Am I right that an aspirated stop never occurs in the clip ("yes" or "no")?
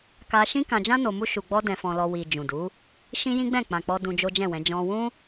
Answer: yes